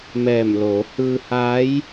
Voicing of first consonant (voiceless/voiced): voiced